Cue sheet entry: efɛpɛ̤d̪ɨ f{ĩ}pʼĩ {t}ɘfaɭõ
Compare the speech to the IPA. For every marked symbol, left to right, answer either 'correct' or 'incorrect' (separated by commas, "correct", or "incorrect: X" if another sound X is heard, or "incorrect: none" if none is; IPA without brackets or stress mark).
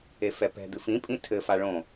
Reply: correct, incorrect: tʰ